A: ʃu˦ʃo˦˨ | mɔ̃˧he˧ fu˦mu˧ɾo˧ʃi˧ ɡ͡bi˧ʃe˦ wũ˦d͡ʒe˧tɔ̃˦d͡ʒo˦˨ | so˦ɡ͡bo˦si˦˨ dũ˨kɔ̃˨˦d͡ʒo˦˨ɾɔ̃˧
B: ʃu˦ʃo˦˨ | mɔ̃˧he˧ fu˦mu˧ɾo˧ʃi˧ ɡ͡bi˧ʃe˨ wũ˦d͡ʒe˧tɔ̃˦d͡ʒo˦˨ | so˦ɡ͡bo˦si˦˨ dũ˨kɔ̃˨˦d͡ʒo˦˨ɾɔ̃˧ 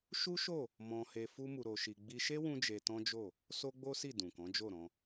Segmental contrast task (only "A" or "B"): A